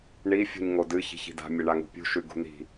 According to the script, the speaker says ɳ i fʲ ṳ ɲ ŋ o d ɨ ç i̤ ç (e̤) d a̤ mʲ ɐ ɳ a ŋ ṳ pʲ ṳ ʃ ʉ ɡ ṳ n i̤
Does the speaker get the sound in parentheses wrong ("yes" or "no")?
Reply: yes